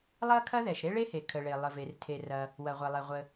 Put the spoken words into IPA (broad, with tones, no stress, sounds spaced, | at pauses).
lˠ ɐ˥ kʰ ɐ˥ ð ɛ˩ ʃ ɾ e˥ ɭ e˥ h e˩ kʰ ə˩ ɭ e˩ lˠ ə˩ v e˩ r tʰ e˩ r ɐ˩ | w ɐ˩ ʁʷ ɛ˩ lˠ ɛ˩ ʁʷ ə˩